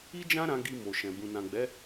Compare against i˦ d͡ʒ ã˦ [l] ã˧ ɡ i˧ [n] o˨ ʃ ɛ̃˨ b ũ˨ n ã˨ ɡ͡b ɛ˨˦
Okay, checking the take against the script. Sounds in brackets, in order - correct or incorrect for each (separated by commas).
incorrect, incorrect